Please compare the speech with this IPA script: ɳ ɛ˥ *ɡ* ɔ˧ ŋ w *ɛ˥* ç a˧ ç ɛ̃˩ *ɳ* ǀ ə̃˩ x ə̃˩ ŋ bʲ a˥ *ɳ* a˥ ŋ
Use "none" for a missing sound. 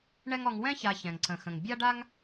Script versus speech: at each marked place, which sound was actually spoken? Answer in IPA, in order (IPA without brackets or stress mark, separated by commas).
ŋ, ɛ̃˥, ŋ, ɖ